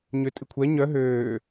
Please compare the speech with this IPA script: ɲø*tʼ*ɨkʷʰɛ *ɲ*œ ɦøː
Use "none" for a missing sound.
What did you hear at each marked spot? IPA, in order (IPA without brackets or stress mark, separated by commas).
tʼ, ɲ